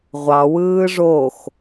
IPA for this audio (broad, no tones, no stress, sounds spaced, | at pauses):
ʁʷ ɑ w ɯː ʐ o x